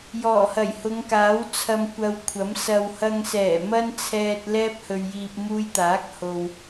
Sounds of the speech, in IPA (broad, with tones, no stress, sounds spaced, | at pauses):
j ɔː˨˩ h ɐ˨˩ j h ʊ˨˧ ŋ k aː˨˥ w t͡sʰ ɐ˧ m kʷ ɐ˧ w kʷʰ ɐ˨˥ m s ɐ˨ w h ɐ˧ ŋ s ɛː˨˩ m ɐ˥ n t͡sʰ ɛː˧ t̚ l ɛː˥ p̚ h ɵ˧ ɥ j iː˧ p̚ m uː˧ j t̪ aː˨˥ k̚ h o˧ w